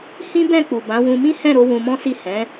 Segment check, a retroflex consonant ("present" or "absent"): absent